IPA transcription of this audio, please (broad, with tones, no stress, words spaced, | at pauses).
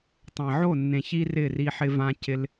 tˤɛ̃˨ʕo˦˨nːẽ˨çi˧ rɪ˦˨ri˧ħɪ˧vã˧ cɪ˧l